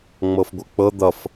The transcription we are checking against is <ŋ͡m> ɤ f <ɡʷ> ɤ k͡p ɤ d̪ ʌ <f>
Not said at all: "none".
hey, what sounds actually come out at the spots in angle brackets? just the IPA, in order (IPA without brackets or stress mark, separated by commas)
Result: ŋ͡m, ɡʷ, f